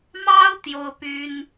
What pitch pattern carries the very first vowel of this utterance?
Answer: high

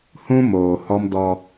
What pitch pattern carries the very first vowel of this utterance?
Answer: high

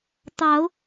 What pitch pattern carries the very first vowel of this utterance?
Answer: rising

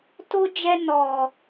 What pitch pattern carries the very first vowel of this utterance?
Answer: high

